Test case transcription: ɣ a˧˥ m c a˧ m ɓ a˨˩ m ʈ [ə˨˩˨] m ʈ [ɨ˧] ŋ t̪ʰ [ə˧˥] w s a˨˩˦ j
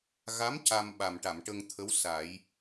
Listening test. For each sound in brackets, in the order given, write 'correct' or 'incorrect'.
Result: incorrect: a˨˩˨, incorrect: ə˧, correct

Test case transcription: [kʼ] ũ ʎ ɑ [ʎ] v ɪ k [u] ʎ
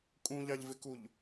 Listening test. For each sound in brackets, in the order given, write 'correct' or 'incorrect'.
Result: correct, correct, correct

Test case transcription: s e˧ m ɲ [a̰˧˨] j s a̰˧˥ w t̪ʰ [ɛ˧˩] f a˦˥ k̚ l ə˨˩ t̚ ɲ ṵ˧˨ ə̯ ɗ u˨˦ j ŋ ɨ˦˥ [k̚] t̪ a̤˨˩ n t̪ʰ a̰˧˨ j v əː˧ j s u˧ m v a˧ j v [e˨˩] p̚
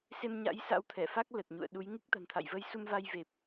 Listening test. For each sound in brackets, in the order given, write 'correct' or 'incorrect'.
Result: incorrect: a̰˧˥, correct, correct, correct

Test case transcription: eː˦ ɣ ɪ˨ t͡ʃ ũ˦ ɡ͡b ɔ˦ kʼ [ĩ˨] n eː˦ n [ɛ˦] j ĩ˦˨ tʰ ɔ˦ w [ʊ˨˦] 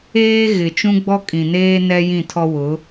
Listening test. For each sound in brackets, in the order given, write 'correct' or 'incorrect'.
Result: correct, correct, correct

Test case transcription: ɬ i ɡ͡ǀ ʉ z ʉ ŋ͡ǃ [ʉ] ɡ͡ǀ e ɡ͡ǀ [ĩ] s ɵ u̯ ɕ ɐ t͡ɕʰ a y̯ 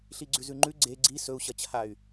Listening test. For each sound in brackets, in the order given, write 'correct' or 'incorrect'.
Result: correct, incorrect: i

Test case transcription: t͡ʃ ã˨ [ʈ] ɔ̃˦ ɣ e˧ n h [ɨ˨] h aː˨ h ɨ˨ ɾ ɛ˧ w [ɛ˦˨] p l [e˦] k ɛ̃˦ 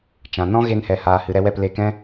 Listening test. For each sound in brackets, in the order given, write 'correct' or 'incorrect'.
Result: incorrect: n, incorrect: ɛ˨, correct, incorrect: e˧

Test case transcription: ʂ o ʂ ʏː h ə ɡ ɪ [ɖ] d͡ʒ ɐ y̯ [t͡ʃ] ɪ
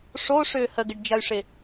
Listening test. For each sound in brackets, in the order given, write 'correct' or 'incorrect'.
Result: correct, incorrect: ʂ

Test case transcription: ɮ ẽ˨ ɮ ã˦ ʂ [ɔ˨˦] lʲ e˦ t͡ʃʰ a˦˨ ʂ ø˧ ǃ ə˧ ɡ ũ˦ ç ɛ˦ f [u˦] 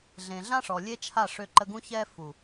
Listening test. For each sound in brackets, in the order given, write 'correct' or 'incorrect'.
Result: incorrect: ɔ˨, incorrect: u˨

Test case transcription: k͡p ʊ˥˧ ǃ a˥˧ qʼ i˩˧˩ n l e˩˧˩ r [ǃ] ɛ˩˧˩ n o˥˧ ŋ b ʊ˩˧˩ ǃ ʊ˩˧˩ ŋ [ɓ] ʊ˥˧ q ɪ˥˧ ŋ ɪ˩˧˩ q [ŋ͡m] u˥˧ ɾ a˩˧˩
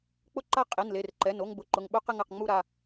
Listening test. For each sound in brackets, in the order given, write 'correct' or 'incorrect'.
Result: correct, correct, correct

